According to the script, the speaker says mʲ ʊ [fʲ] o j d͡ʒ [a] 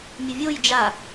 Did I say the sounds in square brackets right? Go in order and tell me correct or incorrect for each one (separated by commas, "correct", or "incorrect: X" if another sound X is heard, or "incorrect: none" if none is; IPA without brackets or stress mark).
incorrect: vʲ, correct